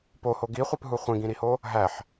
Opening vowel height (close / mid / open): mid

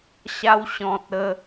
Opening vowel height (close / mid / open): open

